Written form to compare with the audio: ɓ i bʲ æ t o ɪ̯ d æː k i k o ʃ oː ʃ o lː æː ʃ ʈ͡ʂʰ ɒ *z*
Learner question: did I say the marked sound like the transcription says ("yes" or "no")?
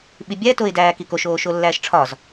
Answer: yes